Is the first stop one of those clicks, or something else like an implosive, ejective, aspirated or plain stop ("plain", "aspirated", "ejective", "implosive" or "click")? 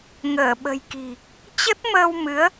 implosive